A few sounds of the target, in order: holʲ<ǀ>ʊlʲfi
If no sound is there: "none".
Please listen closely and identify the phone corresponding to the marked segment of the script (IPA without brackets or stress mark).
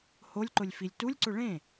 ǃ